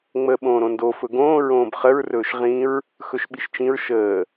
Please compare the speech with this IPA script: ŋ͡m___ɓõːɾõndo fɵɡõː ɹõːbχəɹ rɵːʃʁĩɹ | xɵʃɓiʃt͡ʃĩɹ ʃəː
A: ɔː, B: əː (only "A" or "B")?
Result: B